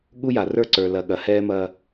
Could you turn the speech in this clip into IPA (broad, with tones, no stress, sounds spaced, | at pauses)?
ɠ u˦ j a˨ r ə˞˦ ǀ ə˞˨ l ɐ˨ ɠ ɐ˨ h ɛː˦ m ɐː˦